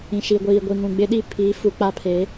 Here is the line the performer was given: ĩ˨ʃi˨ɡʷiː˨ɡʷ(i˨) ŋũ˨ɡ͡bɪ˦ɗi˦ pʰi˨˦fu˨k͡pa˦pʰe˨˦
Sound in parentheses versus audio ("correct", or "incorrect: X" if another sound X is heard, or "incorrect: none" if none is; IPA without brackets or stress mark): correct